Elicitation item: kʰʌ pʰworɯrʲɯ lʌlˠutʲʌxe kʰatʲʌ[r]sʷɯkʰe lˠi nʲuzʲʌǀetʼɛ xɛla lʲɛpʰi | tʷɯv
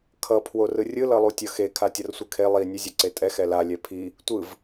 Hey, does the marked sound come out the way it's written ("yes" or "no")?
yes